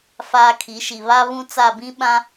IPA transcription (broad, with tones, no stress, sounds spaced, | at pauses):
f aː˦ kʰ i˨˦ ʃ i˨ β a˦ β ũ˦ t͡s a˦˨ b ĩ˦ ɓ ã˦